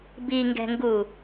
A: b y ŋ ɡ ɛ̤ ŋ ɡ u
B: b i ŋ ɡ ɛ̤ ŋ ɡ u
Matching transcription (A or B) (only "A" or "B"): B